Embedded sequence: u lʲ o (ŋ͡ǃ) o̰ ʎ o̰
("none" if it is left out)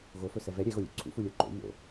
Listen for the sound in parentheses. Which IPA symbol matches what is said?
ǃ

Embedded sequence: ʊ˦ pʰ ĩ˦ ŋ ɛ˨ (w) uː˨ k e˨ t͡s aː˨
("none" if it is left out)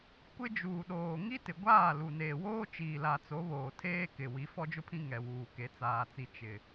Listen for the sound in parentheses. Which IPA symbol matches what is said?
w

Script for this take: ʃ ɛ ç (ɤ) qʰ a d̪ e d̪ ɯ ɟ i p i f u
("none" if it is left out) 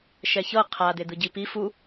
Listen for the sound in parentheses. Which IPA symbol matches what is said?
ɤ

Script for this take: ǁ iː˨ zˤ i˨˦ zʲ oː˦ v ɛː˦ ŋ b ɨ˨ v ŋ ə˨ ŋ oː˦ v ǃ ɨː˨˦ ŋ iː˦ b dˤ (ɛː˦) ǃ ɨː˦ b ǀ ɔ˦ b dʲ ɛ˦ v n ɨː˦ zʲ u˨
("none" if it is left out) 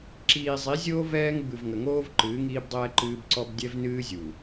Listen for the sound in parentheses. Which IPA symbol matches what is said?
ɛː˦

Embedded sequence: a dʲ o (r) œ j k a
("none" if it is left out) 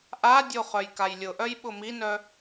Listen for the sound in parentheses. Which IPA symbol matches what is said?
χ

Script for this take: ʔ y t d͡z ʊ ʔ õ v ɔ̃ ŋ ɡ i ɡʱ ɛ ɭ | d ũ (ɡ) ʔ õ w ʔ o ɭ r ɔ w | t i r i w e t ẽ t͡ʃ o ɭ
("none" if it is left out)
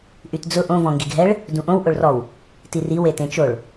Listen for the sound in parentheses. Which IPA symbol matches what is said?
none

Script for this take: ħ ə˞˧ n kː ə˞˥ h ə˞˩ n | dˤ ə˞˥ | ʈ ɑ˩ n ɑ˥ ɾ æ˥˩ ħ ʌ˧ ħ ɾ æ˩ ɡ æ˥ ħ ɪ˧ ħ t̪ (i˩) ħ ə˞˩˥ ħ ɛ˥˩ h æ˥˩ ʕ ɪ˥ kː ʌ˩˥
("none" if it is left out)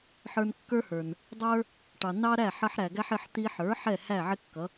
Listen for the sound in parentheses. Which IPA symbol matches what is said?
i˧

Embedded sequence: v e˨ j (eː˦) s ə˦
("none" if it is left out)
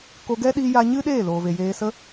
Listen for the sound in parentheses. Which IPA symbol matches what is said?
eː˧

